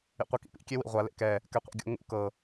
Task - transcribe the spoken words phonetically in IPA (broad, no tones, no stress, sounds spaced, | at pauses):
ḭ qʷ i k ḭ p ḭ kʲ e w ḭ ʁʷ a l ḛ k ɛ | k ɛ qʷ ḛ ɡʲ o̰ ŋ ṵ k ɤ